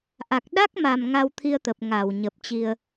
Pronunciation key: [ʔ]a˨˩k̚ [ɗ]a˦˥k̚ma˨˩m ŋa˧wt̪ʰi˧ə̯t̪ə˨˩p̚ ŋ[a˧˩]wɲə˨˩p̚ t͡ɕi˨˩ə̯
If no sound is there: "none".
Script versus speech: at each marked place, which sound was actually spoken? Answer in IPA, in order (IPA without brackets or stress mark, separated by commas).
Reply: ʔ, ɗ, a˧˩